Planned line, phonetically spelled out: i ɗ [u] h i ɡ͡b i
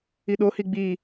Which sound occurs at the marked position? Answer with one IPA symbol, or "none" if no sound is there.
o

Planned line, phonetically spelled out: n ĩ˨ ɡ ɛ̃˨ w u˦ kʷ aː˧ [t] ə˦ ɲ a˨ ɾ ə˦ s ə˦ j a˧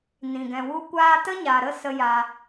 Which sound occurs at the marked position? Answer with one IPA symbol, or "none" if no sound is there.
t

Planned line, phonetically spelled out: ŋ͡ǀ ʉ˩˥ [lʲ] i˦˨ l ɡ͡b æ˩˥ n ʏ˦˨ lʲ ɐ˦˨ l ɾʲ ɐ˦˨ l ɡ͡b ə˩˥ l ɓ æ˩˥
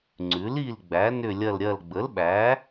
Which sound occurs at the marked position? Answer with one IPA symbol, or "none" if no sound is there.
l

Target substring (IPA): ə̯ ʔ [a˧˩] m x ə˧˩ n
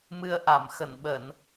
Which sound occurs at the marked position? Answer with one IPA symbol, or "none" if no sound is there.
a˧˩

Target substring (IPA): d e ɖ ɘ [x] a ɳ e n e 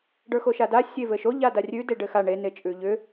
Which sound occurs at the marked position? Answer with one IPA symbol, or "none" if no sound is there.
x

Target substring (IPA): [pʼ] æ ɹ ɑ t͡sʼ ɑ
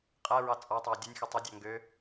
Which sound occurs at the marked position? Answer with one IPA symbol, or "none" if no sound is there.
qʼ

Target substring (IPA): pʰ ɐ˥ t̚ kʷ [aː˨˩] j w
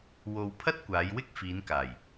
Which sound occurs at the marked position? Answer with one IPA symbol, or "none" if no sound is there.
aː˨˧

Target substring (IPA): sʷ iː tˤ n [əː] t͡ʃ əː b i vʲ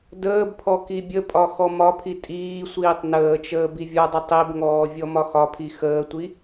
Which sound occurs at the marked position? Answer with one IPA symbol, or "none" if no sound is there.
əː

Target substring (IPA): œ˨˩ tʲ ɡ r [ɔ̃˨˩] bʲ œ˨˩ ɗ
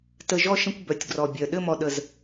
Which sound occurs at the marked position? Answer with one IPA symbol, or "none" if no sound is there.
ɔ˨˩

